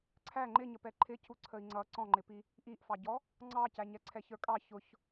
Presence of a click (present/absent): present